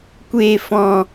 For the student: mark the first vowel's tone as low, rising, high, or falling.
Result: low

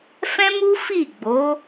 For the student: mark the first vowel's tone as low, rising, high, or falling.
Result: high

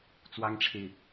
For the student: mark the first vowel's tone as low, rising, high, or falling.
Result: high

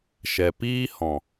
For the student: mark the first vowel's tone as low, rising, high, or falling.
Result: low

